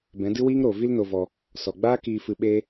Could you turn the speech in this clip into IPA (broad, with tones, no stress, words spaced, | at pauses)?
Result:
bɛ̃˨˦dɨ˦wiː˦ŋ ɾo˨ vi˦lno˧vɔ˧ | sɔ˨ɡ͡baː˦ kiː˧fɨ˧ ɓeː˦